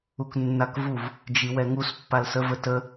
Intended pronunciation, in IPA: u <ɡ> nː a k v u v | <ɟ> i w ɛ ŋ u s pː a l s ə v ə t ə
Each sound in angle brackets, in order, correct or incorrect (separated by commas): incorrect, incorrect